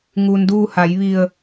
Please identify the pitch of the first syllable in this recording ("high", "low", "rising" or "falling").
low